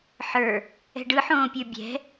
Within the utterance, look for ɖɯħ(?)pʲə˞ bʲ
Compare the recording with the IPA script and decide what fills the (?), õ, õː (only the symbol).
õː